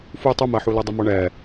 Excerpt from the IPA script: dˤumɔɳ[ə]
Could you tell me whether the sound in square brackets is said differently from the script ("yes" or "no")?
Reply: yes